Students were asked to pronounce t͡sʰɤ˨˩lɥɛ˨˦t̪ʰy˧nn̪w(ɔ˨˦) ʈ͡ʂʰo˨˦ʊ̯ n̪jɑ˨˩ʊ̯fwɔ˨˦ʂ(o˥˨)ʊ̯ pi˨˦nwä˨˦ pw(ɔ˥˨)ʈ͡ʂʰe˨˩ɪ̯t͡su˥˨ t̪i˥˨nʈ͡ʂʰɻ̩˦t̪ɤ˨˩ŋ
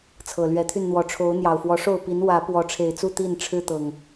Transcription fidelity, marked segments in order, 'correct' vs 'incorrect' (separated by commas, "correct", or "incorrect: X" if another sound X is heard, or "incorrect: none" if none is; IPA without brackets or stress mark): correct, correct, incorrect: ɔ˨˦